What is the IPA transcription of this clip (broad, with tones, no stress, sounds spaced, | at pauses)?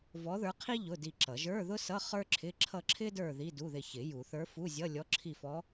v ɔ˧˥ ð ə˞˧˥ qʰ i˥ ʎ ʊ˧˥˧ d i˦˨ ǁ ʌ˨˩˦ ʒ ə˞˧˥˧ ð ʊ˥ s ʌ˧˥˧ χ ə˞˥ ǁʰ ɪ˧˥˧ ǁʰ ʌ˦˨ ǁʰ ɪ˥ d ə˞˦˨ ð i˧˥˧ d u˧˥˧ ð ɪ˦˨ ç ɪ˨˩˦ j u˨˩˦ θ ə˞˧˥ f u˧˥˧ zʲ ʌ˧˥˧ lʲ ɔ˧˥ ǁʰ i˦˨ f ɔ˧˥